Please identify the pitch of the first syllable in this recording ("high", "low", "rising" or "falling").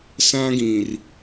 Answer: high